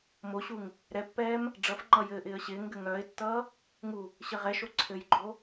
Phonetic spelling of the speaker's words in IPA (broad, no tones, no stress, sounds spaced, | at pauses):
m o ɕ u ŋ | ɾ ɛ pː ɛː m | ɖ͡ʐ ʌ f ŋ͡ǃ ʌ j ɘː ʔ ɪː ə̯ ɕ ɪː ŋ ɡ ɘ ŋ œː ɪ̯ tː ʌː | ŋ u | ɕ ɘ ʁ ɛ ʃ o ǀʰ ɘ j ɡ͡ǃ o